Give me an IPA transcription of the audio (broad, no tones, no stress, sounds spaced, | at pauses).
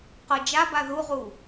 q ɤ d͡ʒ a b a ð u ʁ u